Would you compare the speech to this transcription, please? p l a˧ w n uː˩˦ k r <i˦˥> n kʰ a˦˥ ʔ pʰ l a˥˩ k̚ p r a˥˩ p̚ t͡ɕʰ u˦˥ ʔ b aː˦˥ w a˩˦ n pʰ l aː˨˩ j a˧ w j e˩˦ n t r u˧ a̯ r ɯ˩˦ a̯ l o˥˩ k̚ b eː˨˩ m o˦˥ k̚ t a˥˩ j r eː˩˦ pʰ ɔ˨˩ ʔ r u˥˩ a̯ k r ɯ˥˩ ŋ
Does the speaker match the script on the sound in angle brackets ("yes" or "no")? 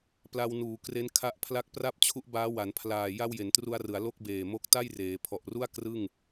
no